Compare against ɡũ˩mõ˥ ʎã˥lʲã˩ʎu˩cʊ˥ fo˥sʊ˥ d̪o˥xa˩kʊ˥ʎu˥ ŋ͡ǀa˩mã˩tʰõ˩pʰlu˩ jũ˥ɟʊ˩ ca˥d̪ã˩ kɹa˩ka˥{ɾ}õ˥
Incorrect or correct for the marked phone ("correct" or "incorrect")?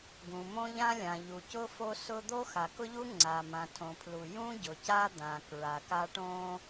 incorrect